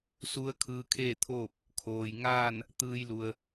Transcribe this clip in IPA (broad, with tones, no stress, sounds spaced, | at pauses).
s u˧˥ ə̯ kʰ ɯː˧ kʰ eː˥˨ t̪ʰ oː˥˨ p̚ | kʰ oː˩ j ŋ aː˥˨ n | t̪ ɯː˧ j l u˩ ə̯